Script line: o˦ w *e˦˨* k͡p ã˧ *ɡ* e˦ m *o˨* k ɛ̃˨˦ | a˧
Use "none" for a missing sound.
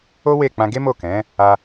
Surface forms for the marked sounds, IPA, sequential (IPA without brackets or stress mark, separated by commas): e˦˨, ɡ, o˦˨